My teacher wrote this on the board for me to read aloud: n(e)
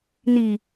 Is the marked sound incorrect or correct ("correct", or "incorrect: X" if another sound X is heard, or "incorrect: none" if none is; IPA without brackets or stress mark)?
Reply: incorrect: i